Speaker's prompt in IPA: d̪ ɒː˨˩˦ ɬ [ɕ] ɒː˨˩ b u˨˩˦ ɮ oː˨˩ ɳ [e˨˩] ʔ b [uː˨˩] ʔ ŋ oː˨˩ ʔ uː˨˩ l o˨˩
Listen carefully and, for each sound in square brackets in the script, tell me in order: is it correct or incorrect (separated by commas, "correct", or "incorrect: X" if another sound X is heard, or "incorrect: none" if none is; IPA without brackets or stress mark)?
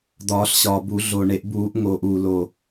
correct, incorrect: e˨˩˦, incorrect: uː˨˩˦